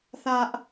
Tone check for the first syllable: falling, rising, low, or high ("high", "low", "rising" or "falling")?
high